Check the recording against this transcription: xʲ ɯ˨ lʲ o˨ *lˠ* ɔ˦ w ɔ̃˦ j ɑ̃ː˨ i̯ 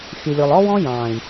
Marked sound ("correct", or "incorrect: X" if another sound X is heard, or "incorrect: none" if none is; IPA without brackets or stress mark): correct